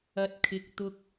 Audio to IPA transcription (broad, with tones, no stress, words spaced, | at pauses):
ɐ˧t̚ kʰɪ˧k̚ t̪ʊ˧k̚